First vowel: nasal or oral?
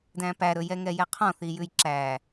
nasal